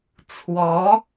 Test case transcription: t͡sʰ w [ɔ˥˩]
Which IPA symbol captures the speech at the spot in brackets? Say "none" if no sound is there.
ɔ˧˥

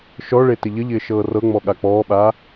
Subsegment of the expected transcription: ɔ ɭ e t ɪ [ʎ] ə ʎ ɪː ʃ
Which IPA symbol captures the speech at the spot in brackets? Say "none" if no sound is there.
ʎ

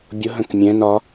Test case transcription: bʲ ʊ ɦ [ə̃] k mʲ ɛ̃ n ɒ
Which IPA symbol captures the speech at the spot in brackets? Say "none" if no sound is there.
ə̃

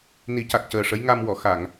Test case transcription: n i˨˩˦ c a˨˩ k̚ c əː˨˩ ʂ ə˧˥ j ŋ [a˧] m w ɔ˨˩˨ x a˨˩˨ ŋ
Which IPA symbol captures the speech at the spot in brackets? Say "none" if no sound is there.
a˧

